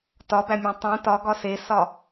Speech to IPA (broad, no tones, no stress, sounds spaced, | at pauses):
t ɒ b æ mʲ æ̃ tˤ ũ t ɒ ɡ ɒ s e s ɒ